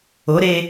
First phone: o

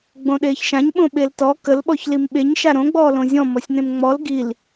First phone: ɡ͡b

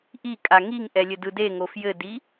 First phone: ʔ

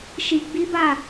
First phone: ʃ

